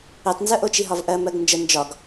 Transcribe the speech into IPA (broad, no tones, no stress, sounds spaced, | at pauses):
i tˤ n z ə ʔ o t͡ʃ i ɦ ɒ v ʔ ɜ m ɜ ɡ n d͡ʒ ə n d͡ʒ ɒ ɡ